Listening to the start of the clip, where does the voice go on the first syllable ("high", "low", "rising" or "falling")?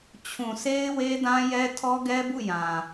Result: low